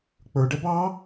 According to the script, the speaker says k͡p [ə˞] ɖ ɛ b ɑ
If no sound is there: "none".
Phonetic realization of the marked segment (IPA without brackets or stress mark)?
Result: ə˞